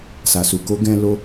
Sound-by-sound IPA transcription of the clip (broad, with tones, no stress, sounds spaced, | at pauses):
s a˨ s u˨ k o˨˦ ɡ ɛ̃˧ l o˦